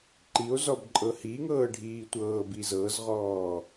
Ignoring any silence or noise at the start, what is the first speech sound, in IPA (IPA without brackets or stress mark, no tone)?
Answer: ǃ